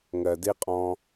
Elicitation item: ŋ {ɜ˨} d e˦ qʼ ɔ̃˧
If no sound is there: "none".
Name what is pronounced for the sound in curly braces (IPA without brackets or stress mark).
ɜ˨